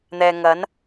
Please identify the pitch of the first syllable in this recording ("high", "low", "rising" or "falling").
low